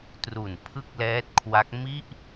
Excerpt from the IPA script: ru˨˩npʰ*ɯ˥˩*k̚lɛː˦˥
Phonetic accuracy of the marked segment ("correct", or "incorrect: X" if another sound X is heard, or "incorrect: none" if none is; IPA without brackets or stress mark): correct